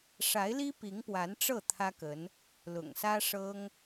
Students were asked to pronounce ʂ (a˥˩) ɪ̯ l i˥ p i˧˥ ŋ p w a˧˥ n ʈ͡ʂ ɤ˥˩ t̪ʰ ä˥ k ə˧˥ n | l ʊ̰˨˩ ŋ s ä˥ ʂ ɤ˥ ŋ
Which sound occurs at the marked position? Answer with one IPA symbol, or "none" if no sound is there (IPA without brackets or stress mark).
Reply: a˧˥